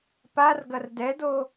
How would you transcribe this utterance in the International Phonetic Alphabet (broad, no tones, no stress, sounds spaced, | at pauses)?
p a r ɡ ɐ r d ɛ d o